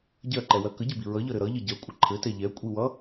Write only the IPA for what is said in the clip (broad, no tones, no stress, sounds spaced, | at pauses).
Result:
ɟ ɜ ǃ ɛ w ɜ k ə ɟ ɘ b i ɹ ʌ ʎ ʌ ɾ ɘ ɾ ʌ ʎ ə ɟ ɜ kʷʼ ə ǃʰ ɘ t ɛ ʎ ɛ kʷʼ i w ʌ